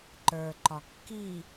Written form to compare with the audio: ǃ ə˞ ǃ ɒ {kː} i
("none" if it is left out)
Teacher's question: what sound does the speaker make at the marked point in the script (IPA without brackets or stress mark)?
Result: kː